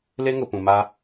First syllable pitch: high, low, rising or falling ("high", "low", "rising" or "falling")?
high